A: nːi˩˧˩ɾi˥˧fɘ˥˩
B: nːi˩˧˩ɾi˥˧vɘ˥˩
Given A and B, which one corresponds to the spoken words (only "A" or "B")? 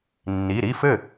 A